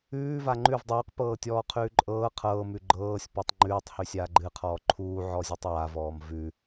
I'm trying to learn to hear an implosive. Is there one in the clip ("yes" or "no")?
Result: no